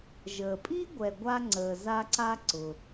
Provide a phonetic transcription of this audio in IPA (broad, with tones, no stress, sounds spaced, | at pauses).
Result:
ʒ əː˨ pʼ i˥ ɡʷ ɛ˨ ɡʷ a˦ ŋ͡ǀ əː˨ z a˦ ǀ a˦ ǀ ʊ˨